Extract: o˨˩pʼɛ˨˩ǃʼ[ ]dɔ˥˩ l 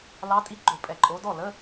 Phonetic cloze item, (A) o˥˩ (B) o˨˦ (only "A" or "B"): B